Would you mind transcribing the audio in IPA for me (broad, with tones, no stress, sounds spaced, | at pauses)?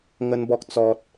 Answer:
ŋ ə˦ n b ɔ˦ k̚ t͡s ɔ˦ t̚